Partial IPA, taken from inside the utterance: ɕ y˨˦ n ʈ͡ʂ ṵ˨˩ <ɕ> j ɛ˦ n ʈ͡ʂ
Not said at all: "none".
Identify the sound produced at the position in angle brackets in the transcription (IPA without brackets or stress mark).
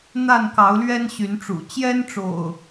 t͡ɕ